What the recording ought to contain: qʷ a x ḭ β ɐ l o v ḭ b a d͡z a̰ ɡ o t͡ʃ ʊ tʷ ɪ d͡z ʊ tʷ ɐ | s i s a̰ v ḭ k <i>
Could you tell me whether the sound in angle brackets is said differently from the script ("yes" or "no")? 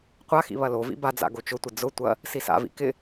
yes